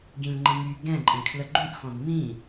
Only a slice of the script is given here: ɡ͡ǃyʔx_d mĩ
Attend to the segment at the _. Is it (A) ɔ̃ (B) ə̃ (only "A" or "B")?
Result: A